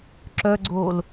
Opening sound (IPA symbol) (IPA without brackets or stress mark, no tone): ǁ